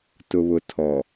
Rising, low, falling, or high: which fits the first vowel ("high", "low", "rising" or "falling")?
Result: low